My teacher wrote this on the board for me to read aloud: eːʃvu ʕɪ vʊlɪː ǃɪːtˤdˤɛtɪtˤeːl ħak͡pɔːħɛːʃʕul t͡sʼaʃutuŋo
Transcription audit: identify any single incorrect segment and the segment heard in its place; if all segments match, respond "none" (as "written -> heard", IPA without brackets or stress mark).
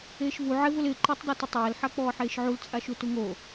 ɛː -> eː